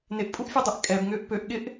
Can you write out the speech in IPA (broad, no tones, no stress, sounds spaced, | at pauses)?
n ɪ ʔ pʼ u ʔ fʲ œ dˤ ø ʔ kʼ ɛ b ŋ ʏː ʔ p ø ʔ ɠ ɪ ʔ